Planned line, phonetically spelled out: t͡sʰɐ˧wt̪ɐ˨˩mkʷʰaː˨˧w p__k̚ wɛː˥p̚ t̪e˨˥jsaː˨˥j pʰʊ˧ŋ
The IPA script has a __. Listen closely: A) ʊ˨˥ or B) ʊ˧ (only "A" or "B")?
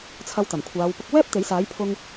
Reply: B